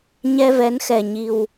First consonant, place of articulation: palatal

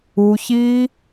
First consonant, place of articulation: palatal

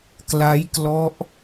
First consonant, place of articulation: velar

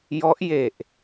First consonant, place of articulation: palatal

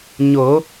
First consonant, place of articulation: palatal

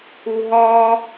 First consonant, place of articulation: glottal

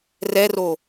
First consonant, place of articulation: alveolar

